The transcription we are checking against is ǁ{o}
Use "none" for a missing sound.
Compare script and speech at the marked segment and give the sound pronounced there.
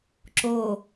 o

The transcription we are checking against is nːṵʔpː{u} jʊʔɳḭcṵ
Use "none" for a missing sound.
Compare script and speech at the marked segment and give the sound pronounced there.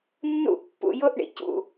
ṵ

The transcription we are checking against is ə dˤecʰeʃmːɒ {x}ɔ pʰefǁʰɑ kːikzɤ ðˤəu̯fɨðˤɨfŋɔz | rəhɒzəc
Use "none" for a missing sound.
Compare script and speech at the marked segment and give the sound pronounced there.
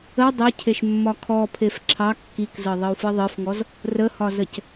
kʰ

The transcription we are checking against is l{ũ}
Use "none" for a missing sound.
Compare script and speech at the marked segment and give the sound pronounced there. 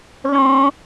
õ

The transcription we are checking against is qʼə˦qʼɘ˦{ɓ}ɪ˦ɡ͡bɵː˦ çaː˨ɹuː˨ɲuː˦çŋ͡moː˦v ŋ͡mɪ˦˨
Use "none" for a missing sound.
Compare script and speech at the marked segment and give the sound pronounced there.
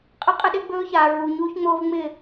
ɗ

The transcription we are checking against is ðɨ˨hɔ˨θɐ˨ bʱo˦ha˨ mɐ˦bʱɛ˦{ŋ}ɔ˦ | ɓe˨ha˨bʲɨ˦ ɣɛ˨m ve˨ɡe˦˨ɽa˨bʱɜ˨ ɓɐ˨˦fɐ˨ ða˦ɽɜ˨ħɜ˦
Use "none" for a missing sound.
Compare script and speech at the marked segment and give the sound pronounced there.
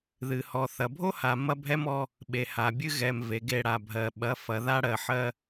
m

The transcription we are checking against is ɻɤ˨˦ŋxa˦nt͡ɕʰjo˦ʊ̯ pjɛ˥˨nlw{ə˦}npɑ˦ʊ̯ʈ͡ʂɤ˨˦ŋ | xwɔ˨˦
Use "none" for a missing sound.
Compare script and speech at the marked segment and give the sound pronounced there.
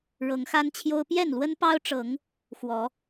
ə˦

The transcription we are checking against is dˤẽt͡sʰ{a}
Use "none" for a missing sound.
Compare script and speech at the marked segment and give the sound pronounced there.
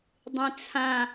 ã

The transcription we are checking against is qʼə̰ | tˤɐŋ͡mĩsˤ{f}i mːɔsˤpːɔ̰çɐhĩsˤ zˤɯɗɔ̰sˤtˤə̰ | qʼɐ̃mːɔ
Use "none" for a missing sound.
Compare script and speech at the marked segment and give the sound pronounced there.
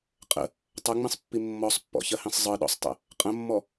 pː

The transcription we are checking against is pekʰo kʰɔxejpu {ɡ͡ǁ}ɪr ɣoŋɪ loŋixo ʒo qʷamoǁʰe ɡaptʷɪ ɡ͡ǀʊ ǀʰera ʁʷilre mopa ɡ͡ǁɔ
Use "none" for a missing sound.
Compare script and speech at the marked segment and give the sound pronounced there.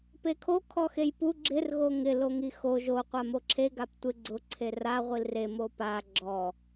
ɡ͡ǁ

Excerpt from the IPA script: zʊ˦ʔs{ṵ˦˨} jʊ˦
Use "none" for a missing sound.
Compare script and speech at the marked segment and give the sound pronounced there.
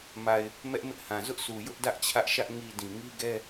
u˨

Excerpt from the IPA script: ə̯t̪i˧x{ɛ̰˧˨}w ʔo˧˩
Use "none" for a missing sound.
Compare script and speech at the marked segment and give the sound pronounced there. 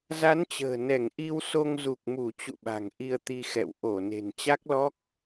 ɛ̰˧˨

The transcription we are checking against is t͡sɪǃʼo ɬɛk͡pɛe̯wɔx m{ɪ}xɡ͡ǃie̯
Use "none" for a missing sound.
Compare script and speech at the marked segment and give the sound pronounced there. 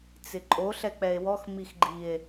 i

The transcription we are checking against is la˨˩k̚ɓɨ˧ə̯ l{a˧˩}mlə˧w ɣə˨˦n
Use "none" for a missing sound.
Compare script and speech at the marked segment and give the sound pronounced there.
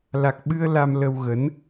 a˧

